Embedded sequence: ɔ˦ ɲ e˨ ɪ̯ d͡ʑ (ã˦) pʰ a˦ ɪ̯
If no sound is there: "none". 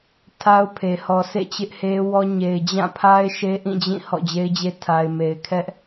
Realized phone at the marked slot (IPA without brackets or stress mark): ã˦˨